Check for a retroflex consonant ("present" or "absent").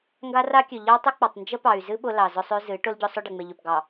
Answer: present